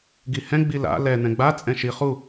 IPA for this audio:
ɡihɛ̃ ɡ͡bila̰ lɛ n̪ɛ̃ɡ͡bat͡sʼɛ̃ ʃi χu

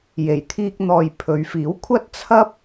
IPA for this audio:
je˨˩jt̪ʰiː˧k̚n̪ɔː˨j pʰɵ˨˧ɥfiː˨˥wkʷʰɐ˥t̚ t͡sʰɐ˥p̚

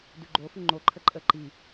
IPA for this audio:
dʉɡ͡ǃofʉ ŋ͡ǃoǃʰə ǃʼə ǃi

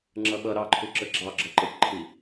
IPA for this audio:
ŋ͡ǁʌɓʌ ɾɑǃʰuǁə ɡ͡ǁɑɡ͡ǁɒǃɜkʷǃʰi

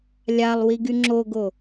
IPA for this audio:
lʲalˠwi ɡyŋ͡ǁoɡo

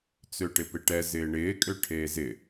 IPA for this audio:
t͡søʈɪpɪʈɛ zɪːɳɪː kʼøʈʰeːzɪ

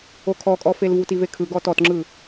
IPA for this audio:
okʰɔkʼɔfel vutivekʰɯ ɡɔtɔtŋ͡ǁɯ

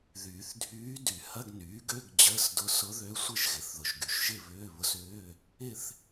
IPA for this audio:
ðyː˨˩˦θdʱyː˧˥ dy˨˩˦hɐ˧˥˧ɡnyː˩˥ɡø˧˥˧ɡ d͡ʑəː˧˥˧sdʊ˧˥ sʊ˧˥ðø˧˥sʷɪ˥˧ʒ ɣɪ˨˩˦θðʊ˨ʒɡy˨ʃ ʒɪ˥˧βʏː˧˥˧βʊ˧˥sʏː˧˥˧ | ɪ˥˧θ

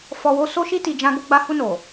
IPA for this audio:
fɔ˨ wo˧ so˧ʃi˧ti˨ d͡ʒã˧ɡo˧ɡ͡ba˧ hu˧no˨

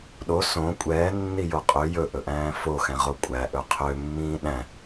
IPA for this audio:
ɗo sõ kʷʼɛːnːijo qʼø jɵʔɵʔæ̃ː foxɛ̃ʁo kʷʼæʔɵ qʰømːĩː ɗæ̃

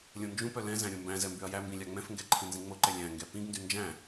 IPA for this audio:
lʲõnd͡ʒũpœ lɛ̃zæ̃ ɾʲõmbæ̃zɛ mbyɐ̯jæmbĩ lʲɑŋ͡mɛ̃fŋɡɛ ǃʰĩnzĩŋ͡moǃɛ lʲæ̃ŋɡɛ pĩɡndy nd͡ʒæ̃

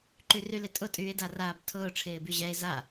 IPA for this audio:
ǃyrylɪtʼʊ tʼyːe̯daraːbtʰʊː ʈ͡ʂʰɪːbyʑɛe̯ za

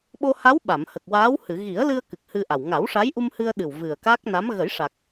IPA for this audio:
ɓo˧ha˧˥w ɓa˨˩˨mhə˨˩k̚waː˧˥whɨ˨˩˨ ɣi˨˩˦ə̯lɨ˧ə̯ kɨ˨˩k̚hɨ˧ʔa˨˩w ŋa˨˩˦w ʂa˧˥j ʔu˧mhɨ˧ə̯ɗɨ˨˩w vɨ˨˩ə̯ka˦˥k̚ na˧˥m ɣə˨˩˦jʂa˨˩k̚

